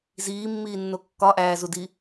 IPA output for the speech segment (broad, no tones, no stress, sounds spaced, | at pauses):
z iː mː iː nː o kː ɒ ʔ æː z u d i